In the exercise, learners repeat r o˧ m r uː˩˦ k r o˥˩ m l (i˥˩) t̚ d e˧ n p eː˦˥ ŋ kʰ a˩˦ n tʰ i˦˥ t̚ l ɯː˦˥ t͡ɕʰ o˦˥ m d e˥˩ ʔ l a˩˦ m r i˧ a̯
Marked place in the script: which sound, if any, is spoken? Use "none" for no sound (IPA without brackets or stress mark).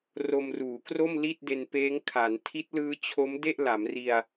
i˥˩